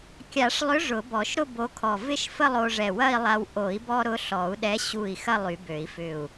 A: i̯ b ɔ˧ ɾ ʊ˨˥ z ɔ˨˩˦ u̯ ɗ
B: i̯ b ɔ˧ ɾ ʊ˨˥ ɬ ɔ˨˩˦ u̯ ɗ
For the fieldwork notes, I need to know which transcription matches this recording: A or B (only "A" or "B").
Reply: B